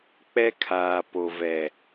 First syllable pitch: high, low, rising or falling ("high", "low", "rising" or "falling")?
high